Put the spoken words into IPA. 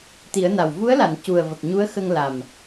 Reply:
t̪ i˨˩˦ ə̯ n a˨˩ w v u˧˥ ə̯ l a˨˩˨ n c u˨˩ ə̯ v ə˨˩ k̚ ɲ u˧˥ ə̯ x ə˧ ŋ l a˨˩ m

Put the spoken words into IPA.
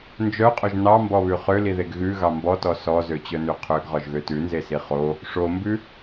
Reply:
n d͡ʒ œ qʼ ɵ ʒ n ɑ m b ɔ β ʉ χ ø l i ð e ɡ ɣ ʉ ɣ ɑ m b ɔ t ɔ s ɔ z ø t͡ɕ œ n ʉ qʰ ø ɡ ʁ ɔ ʒ ɣ ø t ʉ n z e s i χ o | ʂ o m b ʉ

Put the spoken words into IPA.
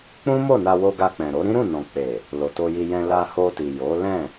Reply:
k͡p ũ˦ m o˦˨ n a˧ w o˧ ɡ a˧ k͡p ɛ̃˨ ɾ o˨˦ ɾ ĩ˦ ɾ ũ˦˨ n ɔ̃˨ k͡p e˨ | l o˨ t o˧ j i˧ j ɛ̃˧ l a˧ h o˧ t i˨ j o˨˦ l ɛ̃˦˨

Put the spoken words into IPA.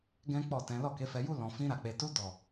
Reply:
ɡ ɛ̃˦ k͡p ɔ˦˨ t ɛ̃˨˦ l ɔ˦˨ k e˨˦ f ɛ˧ j u˦ l ɔ̃˧ f ĩ˦ ɾ a˧ k͡p e˧ t u˦ d ɔ˦˨

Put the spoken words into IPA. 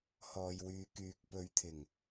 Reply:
h ɔː˨ j w yː˨˧ k yː˨ k̚ p ɵ˨˥ ɥ t̪ʰ ɪ˨˩ ŋ

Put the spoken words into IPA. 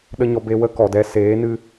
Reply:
ɗ ə˦ ɲ ɔ˦ b e˦ w ə˦ k ɔ˨ d ɛ˧ s eː˨˦ n ɨ˧

